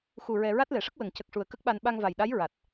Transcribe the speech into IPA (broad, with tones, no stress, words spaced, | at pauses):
xu˨˩ ɹɛ˧ ɹa˦˥t̚lɛ˨˩ʂə˦˥k̚ wə˨˩˨ŋcə˨˩k̚ʂu˨˩ə̯ kə˦˥k̚ɓa˧n ɓa˧ŋva˨˩jɗa˧˥j ɹa˨˩t̚